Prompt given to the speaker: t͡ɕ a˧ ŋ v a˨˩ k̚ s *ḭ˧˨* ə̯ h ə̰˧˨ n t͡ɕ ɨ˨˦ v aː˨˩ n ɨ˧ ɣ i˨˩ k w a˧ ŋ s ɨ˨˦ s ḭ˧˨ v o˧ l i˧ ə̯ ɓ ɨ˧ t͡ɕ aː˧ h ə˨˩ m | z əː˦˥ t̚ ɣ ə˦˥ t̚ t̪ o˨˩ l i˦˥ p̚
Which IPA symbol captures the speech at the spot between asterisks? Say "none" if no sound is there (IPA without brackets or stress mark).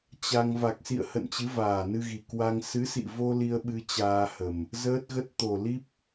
ḭ˧˨